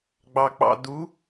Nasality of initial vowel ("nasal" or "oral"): oral